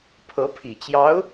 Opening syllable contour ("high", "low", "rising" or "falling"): rising